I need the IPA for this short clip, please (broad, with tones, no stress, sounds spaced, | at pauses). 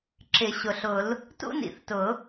ǁ ɪ˨˩˦ ɕ ʊ˩ ɬ ʊ˨˩˦ l | t ṵ˥ n ḭ˨˩˦ θ t ʊ˨˩˦